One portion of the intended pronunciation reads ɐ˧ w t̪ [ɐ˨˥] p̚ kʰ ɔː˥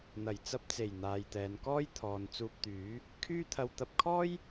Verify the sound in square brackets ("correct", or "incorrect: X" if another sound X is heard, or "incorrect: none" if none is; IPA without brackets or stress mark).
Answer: incorrect: ɐ˧